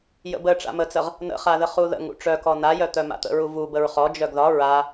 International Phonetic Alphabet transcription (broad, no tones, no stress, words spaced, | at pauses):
jə̰bə ʈ͡ʂa̰mət͡səʁ | nə̰χaðə χuðə̰ŋ ṵʈ͡ʂœkɔ najœ t̪œma̰t̪ə̰ɹu vu bəɹχɔ d͡ʒœɡðɒ ɹa